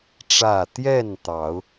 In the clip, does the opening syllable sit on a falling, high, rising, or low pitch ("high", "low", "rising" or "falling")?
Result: falling